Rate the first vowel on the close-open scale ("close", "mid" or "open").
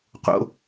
mid